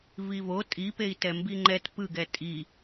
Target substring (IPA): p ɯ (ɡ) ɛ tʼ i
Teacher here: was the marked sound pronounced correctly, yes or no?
yes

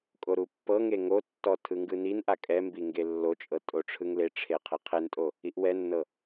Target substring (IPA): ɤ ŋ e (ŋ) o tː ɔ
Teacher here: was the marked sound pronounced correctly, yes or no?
yes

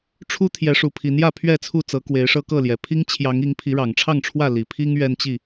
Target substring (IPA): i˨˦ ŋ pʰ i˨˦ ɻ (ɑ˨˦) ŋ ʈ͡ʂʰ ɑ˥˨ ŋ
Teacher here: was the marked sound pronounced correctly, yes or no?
no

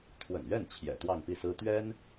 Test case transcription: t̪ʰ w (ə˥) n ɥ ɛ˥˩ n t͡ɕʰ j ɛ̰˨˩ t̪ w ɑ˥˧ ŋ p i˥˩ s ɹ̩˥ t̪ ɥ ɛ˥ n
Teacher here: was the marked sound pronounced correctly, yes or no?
no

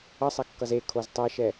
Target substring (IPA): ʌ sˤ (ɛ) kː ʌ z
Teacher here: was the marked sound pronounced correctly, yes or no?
yes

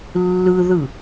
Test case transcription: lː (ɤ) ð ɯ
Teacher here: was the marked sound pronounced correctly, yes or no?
no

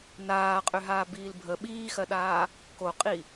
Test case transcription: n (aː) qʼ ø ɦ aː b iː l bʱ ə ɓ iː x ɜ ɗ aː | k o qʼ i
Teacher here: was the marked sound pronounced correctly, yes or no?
yes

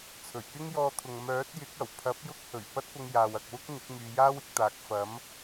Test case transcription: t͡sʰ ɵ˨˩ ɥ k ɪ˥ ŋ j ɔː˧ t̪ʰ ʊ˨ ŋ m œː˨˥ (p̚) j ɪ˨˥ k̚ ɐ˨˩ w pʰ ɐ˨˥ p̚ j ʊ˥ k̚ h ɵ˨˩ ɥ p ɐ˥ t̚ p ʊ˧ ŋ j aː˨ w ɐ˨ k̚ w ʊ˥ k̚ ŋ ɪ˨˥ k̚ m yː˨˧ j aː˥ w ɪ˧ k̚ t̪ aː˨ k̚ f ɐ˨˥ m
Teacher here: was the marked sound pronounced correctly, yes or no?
no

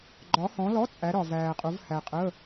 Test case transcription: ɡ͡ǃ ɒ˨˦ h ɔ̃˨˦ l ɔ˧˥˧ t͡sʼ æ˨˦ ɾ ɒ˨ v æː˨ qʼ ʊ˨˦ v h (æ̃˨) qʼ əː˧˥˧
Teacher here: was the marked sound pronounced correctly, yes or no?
no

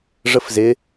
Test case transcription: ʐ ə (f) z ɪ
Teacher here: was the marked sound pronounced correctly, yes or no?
yes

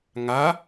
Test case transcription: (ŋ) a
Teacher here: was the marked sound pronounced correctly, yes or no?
yes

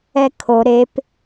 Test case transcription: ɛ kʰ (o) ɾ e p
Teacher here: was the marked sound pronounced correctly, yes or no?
yes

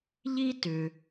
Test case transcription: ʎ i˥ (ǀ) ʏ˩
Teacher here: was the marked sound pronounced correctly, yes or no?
no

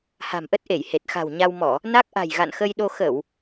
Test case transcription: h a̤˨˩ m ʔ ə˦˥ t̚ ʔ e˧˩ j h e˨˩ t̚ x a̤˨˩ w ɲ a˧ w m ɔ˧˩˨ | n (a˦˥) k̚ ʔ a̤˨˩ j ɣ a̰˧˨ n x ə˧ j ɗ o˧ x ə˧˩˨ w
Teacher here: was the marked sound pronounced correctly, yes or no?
yes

